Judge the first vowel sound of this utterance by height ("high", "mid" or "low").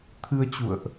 high